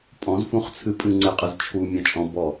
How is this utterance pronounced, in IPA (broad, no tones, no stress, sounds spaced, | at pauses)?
pʼ ɔ̃ z f ũ χ t͡sʰ ɨ pʼ ɨ ŋ͡ǀ e qʼ ɨ z t͡ʃʰ u mʲ ã t͡ʃʼ ɔ̃ b ɔ